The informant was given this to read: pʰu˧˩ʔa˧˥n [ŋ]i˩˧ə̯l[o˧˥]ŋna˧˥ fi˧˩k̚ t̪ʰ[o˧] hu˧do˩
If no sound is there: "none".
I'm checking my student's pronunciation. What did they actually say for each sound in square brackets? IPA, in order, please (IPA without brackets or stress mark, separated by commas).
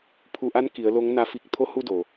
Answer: k, o˧˥, o˧˥